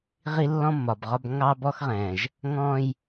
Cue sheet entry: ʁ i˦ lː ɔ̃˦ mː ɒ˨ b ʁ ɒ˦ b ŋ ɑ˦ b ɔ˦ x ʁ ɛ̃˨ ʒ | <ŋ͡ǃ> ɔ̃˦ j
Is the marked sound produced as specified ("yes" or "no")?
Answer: no